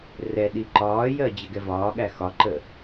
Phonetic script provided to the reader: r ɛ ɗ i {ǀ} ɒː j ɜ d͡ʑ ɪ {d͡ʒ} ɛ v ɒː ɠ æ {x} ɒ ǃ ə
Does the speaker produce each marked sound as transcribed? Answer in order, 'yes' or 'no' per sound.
no, no, yes

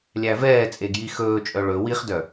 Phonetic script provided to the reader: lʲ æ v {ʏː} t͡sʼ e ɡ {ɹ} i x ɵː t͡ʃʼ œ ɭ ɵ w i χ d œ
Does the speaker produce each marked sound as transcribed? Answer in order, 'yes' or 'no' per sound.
no, no

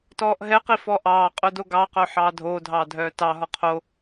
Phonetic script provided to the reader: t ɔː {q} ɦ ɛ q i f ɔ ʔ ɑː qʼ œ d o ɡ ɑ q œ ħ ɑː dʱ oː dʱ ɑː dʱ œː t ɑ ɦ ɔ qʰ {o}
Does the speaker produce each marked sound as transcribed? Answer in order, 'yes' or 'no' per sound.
no, yes

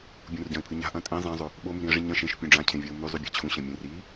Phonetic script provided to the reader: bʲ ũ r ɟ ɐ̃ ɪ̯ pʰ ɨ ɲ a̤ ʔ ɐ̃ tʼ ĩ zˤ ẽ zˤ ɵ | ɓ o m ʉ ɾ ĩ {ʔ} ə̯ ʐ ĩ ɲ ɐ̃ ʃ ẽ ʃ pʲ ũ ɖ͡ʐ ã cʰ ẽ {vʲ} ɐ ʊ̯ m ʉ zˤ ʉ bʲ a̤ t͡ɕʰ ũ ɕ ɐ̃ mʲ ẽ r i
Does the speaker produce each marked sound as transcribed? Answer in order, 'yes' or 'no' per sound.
no, yes

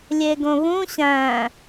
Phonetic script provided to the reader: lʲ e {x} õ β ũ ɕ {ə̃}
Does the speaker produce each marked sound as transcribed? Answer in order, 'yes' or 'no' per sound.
no, no

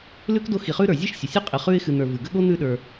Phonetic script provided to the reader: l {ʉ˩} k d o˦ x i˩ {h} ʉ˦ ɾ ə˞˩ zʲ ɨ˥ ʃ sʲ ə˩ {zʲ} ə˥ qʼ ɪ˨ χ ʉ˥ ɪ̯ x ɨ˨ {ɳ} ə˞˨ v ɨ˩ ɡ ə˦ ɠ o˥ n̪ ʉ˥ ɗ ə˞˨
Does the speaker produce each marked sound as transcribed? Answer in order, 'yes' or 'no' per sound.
no, no, no, no

